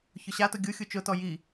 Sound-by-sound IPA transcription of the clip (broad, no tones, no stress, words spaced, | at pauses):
çʊɕatʊ ɡʲu xʲut͡ʃʊtɔ ji